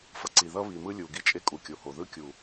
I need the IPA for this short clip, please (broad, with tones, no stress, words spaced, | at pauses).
fʌ˨ ǀi˨ðʌ˦βi˨mɯ˦ lʲu˨ ɡi˦t͡ʃʼe˦ kʼu˨kʲo˨ho˨ ðɯ˦kʲu˨